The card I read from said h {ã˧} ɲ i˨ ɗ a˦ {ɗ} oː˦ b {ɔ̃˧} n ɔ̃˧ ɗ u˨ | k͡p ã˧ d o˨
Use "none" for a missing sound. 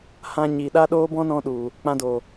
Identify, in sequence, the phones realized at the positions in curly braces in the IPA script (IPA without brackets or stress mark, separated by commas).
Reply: ã˧, ɗ, ɔ̃˦